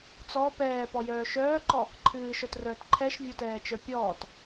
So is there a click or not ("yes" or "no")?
yes